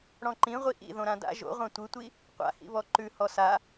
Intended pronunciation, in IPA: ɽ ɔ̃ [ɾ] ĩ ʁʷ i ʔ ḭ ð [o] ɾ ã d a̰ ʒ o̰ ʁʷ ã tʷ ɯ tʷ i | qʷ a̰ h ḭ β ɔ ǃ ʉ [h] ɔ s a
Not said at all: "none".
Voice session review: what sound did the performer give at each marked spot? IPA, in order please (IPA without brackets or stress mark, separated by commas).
ǃ, õ, h